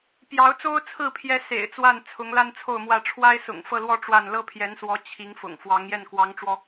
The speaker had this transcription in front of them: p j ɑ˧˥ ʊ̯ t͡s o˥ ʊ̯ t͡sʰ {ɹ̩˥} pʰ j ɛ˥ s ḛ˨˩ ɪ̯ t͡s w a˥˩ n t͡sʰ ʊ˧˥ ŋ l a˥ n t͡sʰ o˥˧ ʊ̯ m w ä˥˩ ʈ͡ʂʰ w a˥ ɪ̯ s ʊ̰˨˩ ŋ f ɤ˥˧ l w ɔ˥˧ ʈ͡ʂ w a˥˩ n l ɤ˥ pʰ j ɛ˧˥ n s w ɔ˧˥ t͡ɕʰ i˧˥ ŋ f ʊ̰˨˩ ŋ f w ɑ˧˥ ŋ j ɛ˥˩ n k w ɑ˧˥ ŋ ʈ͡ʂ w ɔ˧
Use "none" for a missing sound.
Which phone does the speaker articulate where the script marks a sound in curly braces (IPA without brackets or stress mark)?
ɹ̩˥˩